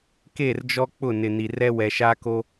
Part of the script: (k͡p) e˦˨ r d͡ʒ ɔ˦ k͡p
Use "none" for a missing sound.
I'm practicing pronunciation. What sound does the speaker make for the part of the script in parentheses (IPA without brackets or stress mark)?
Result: k